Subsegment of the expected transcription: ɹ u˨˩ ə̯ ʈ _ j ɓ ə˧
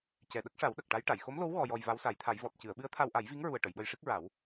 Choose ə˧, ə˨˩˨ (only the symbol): ə˨˩˨